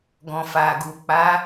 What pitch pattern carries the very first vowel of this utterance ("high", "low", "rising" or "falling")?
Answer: low